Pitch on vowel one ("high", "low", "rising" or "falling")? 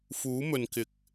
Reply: rising